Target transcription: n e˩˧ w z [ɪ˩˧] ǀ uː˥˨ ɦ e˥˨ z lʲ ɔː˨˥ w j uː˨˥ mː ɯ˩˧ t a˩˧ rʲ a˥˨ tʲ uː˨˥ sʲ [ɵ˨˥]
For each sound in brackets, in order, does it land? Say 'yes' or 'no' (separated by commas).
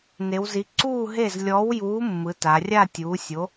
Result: no, no